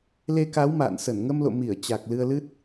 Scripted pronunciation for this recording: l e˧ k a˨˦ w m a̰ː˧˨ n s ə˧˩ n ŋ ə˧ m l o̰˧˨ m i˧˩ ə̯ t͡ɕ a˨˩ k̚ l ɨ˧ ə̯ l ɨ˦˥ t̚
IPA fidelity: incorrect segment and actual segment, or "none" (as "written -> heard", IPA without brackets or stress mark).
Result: none